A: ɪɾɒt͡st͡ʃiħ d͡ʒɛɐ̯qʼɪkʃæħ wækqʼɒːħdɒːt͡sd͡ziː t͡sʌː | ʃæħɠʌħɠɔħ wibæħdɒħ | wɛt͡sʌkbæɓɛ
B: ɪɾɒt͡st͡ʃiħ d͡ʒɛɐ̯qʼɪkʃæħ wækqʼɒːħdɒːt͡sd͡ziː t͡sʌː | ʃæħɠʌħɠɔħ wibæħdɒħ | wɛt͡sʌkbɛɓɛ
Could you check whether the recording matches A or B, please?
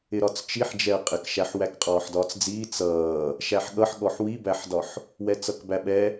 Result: A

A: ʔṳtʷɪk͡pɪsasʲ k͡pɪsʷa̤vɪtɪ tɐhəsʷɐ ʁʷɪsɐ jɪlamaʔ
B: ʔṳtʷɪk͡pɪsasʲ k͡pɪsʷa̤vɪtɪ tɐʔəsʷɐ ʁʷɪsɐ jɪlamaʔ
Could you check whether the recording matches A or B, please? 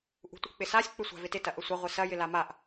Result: B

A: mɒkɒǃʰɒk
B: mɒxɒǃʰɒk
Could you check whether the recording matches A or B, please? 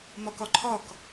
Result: A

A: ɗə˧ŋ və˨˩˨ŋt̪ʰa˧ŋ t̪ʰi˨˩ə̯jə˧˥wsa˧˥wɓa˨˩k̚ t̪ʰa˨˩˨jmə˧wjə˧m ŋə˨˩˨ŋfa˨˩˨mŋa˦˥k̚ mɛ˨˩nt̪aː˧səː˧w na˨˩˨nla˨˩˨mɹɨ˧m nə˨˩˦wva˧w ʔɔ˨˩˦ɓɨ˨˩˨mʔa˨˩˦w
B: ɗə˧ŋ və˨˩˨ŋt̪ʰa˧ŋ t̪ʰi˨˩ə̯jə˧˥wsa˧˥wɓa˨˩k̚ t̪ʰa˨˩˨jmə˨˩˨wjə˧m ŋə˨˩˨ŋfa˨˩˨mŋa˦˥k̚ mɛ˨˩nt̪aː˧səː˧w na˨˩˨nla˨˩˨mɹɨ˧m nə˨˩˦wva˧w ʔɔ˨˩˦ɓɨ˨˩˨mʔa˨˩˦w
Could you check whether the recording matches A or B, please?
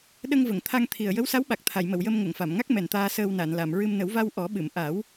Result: B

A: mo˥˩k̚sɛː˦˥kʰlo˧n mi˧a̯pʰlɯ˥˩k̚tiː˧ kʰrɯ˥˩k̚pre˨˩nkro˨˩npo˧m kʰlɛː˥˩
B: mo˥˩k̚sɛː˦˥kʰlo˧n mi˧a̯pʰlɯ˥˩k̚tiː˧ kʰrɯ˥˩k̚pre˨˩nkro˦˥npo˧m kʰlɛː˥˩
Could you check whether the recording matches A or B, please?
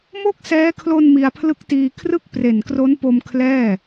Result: B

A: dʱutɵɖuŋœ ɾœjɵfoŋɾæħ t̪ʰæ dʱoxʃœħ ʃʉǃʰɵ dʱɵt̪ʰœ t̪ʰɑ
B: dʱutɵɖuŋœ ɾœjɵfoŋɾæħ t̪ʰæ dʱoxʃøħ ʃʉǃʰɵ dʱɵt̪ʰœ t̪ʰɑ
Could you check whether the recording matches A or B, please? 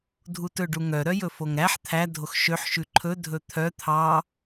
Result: B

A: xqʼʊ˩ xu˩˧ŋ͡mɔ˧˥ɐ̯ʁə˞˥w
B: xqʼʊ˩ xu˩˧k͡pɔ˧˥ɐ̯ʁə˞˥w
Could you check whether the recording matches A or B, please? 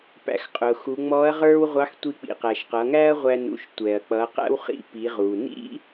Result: A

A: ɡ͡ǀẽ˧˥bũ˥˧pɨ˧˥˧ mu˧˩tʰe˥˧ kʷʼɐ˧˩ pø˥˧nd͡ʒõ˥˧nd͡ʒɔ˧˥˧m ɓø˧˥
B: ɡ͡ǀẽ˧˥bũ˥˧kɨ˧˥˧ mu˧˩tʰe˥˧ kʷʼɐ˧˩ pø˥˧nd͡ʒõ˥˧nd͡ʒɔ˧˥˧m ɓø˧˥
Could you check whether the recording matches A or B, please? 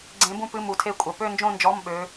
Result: A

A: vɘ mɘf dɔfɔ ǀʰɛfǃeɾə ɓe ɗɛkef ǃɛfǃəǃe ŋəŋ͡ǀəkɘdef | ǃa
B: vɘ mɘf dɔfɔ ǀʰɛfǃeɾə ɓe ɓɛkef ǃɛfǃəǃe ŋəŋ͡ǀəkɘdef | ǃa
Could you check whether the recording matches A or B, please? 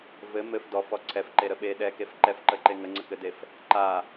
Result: A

